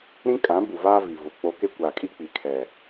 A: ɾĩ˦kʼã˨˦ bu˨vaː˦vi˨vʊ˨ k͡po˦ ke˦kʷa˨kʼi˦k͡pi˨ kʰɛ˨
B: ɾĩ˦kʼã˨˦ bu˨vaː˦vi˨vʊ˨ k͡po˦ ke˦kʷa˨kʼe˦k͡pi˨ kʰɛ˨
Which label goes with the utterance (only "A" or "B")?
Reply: A